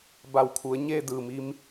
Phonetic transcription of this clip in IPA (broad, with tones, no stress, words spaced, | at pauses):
ba˧˩wkʰu˩˧ə̯ ɲeː˥˨dɯː˧˩mi˧m